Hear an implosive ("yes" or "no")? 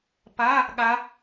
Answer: yes